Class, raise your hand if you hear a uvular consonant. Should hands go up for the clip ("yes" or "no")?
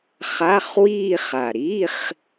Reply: yes